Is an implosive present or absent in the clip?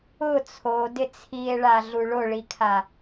absent